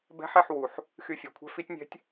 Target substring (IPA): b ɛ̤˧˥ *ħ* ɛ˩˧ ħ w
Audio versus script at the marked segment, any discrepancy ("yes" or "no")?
no